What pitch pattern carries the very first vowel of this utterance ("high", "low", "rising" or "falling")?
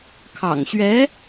low